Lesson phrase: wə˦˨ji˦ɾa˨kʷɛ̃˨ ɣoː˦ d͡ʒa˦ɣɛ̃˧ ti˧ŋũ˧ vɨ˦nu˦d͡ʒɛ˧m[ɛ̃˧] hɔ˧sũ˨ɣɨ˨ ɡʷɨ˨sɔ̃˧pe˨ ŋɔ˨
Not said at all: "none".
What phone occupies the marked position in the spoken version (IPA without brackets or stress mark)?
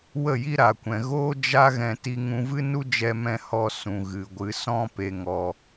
ɛ̃˧